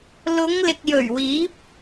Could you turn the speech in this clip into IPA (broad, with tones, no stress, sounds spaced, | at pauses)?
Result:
l ʊ˨˧ ŋ l ɪ˨ k̚ j ɵ˨˩ ɥ w iː˨˥ p̚